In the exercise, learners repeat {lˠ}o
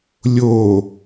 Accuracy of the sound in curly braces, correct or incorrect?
incorrect